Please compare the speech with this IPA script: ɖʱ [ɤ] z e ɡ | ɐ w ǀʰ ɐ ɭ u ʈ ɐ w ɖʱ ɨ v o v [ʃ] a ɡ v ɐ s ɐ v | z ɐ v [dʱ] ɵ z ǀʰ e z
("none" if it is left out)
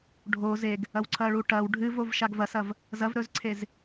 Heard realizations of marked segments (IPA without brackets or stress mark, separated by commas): o, ʃ, ɾ